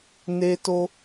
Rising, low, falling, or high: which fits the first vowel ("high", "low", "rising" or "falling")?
high